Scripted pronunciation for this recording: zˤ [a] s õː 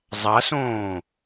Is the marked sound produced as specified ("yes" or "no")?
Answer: yes